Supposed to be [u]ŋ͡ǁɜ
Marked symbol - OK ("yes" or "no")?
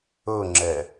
no